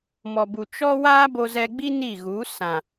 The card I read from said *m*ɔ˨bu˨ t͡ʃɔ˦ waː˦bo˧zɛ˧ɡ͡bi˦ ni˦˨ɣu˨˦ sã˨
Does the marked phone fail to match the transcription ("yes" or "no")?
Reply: no